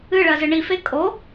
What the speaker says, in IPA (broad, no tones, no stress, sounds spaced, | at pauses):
ɨ ɭ ɜ z ɨ ɳ i f e kʼ o